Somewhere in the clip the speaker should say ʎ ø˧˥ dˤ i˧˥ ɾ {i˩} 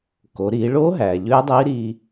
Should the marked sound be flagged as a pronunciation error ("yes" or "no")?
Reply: yes